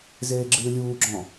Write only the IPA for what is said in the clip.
zeːɡ͡ǁɨːlʲuːɡ͡ǁɔ̃

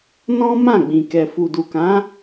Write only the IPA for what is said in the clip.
nɔ̃˦ mã˦˨ɡ͡bĩ˨kɛ˨ fu˨du˨kã˨˦

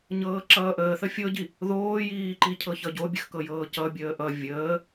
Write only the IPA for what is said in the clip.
ɲɤːǁʌːʔəːθə fʲɤɟi | ðoːjiː ǃicʰɤçʌɟo bʲəxkɤjɤːcʌ bʲəːʔʌ vʲəː

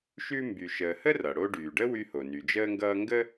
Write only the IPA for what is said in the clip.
ʃʉ˦mby˨ʃəː˨hə˥ rʌ˩ɽo˦ ɖyː˩ɖə˥ wy˦ho˩ny˩ d͡ʒəː˦ŋɡʌː˦ ŋɡə˥

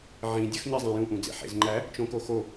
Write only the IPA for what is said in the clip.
ʕĩdʲɒxɲi zˤæ̃jũʔũd͡zḛ ħḛzŋ͡ǃæ | t͡ʃõkoxo

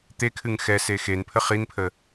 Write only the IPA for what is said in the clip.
t̪ekʰɨŋ xɛ sexenpʰə χinpʰə

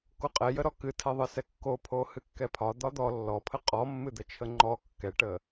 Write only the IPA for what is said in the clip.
koqʼɛjəɾɔ kɨtʰɛðˤɨsɛ kːopʰo hɨkːɛpʰɒ d̪ɒd̪ɔ lːɔpʰə qʼɔmːɨd̪ət͡ʃʰə ŋ͡ǃɔ kːɛʈə

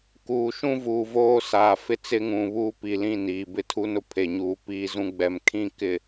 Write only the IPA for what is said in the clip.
kuː˨ʃũ˦vuː˨ voː˦saː˨ fɪ˦t͡sɪ˦ŋũ˨ βuː˦pi˨lĩ˦˨ niː˨bɪ˦ tʰu˦nʊ˦pʰe˨ɲuː˨ piː˦zũ˦ ɡ͡bɛ˨m kʰĩ˦ kɪ˨

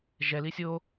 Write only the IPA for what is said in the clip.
ʒɛli sʲo

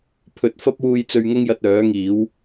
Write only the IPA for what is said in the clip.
pʰɵ˨˥t̚ fɐ˥p̚wuː˧j t͡sɵ˧ɥŋʊ˥ŋjɐ˧t̚ œː˨˥ŋiː˨˥w

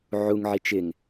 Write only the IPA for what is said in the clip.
ʕuŋ ʕit͡ʃɪŋ

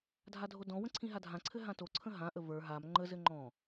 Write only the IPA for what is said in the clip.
dʱadʱodɔ̃wə̃ ǀʰĩɦadʱãǀʰɘ ɦãtoǀʰə̃ ɦãʔə və˞ ɦam ŋ͡ǃəzɘ ŋ͡ǃɔ̃

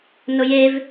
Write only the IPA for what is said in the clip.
nʊjev

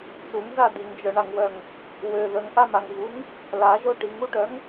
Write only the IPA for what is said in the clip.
t͡suŋza diŋd͡ʒœɳaŋwœŋ | wø ðəŋʔamaŋvuŋ | laʒo ʈiŋuʈœŋ

